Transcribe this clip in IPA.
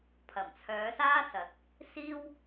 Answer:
pʰ ɐ˨˩ m t͡sʰ œː˨˧ s aː˥ s ɐ˨˥ t̚ | s iː˥ w

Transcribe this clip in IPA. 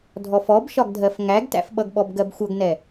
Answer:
dʱ ɔ f ɔ b ʃ ɒ ɡ dʱ ɜ f ŋ æ ɡ t æ̰ f ɓ ʌ ɡ ɓ ɔ b ɡ ɜ b xʷ ʌ ɡ n ɛ

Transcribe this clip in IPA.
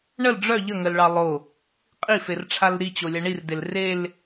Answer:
ɳ ə l ɖ͡ʐ œ ʎ ə ŋ ə l ɭ ɑ lˠ o | qʼ i f e r ʈ͡ʂʰ a l ɾ i t͡ɕ o lʲ a ɳ i r d e l r e l

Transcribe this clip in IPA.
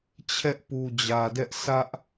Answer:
t͡ɕʰ ɛ˦ ʔ p u˨ d͡ʑ ä˨ d ɛ˦ ʔ sʰ ä˦ ʔ

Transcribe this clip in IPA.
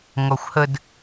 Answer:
ŋ ɔ xʷ h ə d

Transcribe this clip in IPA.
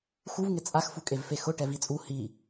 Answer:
x u v ŋ ɪ t͡sʼ a x f u kʼ e v f e x ʊ ʈ ɛ v i t͡sʼ u h i

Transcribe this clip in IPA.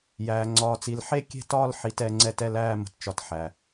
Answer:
j æː˧ ŋ͡ǀ ɒː˧ t͡s i˧ l ħ e˥˧ kʲ e̤˥˧ t ɒː˥˧ l ħ i˧ t ɛ˧ ŋ͡ǀ ɛ˥˧ t ɛ˥˧ l æː˥˧ m ə̤˧ t t͡ʃ ɒ˧ t ħ æ˧

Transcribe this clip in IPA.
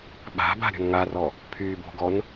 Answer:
ɓ a̤ b a̤ ɾʲ ɔ̤ n ŋ a r ɔ | pʰ yː b o̤ ɡ ɔ n

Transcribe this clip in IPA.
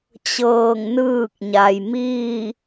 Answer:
t͡ɕ ɤː˧˩ ŋ n ɯː˥˨ k̚ ɲ a˩ j m iː˥˨

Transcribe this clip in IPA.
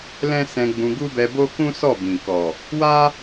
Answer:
l ɛ̃˦ s ɛ̃˧ ɡ͡b ũ˧ ɡ u˦ b ɛ˧ b o˦ k ũ˦ s ɔ˦˨ b ĩ˨ k ɔ˨ | w a˦

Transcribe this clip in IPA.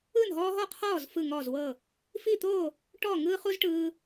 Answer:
ɯ˥˨ n ɦ ɔː˦ ɦ ɔ˥˨ qʰ ɔː˥˨ z f ɯ˥˨ ŋ ɔː˥˨ z w ɤ˥˨ | f i˥˨ t̪ o˥˨ | ʈ ɔ˥˨ ŋ ɯː˦ χ u˦ z ʈ ɯː˦

